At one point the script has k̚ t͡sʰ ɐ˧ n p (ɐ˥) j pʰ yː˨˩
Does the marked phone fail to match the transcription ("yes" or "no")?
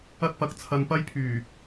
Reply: no